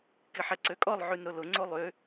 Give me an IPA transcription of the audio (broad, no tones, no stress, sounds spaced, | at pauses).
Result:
k ɪ ħ ɛ ǀ ø kʼ ɔ lˠ ʕ y n ɾ ʊ l ʊ ŋ͡ǀ o lˠ ø